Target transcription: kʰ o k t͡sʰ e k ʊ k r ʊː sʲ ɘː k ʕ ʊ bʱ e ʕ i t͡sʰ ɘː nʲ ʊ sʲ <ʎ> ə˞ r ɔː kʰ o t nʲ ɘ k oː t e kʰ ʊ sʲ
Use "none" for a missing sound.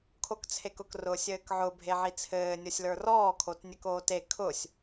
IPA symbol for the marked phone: l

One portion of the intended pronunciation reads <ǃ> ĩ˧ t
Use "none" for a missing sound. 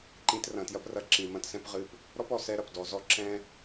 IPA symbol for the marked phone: ǃ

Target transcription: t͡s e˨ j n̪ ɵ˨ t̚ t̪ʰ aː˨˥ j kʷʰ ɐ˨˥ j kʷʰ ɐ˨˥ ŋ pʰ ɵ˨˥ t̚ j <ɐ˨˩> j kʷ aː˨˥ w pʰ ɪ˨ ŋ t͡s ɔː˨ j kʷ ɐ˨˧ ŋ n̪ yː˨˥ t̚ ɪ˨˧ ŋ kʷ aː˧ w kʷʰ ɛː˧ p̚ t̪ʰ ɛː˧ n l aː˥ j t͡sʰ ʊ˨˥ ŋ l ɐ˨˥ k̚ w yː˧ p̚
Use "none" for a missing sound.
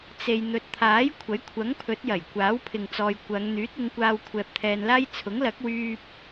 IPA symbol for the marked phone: ɐ˨˩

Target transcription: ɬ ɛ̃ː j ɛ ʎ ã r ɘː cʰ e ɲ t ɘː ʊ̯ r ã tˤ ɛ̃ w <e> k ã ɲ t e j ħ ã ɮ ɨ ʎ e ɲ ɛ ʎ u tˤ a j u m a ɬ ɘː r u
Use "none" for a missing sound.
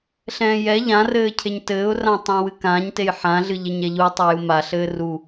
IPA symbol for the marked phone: ɨ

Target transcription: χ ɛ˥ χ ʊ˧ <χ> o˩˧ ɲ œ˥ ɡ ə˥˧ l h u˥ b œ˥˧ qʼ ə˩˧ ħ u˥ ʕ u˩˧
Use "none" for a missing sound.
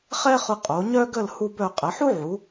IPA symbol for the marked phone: qʼ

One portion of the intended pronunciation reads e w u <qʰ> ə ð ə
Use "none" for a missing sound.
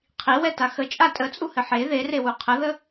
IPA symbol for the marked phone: qʰ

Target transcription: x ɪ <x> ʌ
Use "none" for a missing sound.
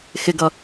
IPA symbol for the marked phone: ɡ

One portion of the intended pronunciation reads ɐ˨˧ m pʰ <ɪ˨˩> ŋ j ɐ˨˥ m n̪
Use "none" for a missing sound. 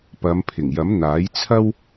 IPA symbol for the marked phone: ɪ˨˩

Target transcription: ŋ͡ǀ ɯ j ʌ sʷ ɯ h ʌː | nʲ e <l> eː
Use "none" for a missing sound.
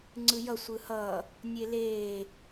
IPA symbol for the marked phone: l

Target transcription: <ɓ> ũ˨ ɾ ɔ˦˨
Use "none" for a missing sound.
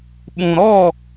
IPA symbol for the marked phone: ɓ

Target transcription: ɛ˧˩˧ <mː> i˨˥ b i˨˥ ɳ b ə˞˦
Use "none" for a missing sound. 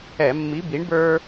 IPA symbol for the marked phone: mː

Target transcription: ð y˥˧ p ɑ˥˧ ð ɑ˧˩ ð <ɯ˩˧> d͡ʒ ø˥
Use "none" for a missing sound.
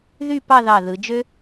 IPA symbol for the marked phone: ɯ˩˧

